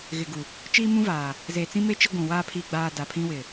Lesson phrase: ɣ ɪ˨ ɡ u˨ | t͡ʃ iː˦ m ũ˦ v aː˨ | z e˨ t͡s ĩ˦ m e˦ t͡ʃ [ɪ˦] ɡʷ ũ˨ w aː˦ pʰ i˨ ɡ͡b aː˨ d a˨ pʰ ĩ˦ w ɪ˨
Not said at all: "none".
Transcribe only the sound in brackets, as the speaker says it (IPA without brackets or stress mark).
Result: i˦